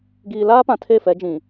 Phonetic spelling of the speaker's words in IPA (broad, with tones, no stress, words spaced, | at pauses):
ɡiː˨ laː˦pã˨ tʰe˦˨fɛ˨˦d͡ʒĩ˨